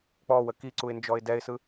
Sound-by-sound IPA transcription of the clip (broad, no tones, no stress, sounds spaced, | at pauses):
k͡p ɔ w ə k i ǀ u ɪ̯ n d͡ʒ ɔ ɪ̯ d ɛ ɪ̯ s ɯ